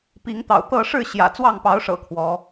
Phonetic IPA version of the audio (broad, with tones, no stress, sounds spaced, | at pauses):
p i˨˦ ŋ t̪ ɑ̰˨˩ ʊ̯ t̪ ɤ˥˨ ʂ ɻ̩˥˨ ɕ j ä̰˨˩ t͡s w ɑ˥˨ ŋ p ɑ˨˦ ʊ̯ ʂ ɤ̰˨˩ kʰ w ɔ˨˦